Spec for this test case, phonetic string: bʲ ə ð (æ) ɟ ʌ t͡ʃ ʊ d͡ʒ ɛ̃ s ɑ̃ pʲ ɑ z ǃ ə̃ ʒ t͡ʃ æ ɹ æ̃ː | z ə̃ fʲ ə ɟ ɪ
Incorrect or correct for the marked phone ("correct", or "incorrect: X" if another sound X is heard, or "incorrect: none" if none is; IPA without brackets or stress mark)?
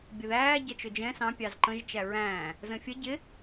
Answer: incorrect: æː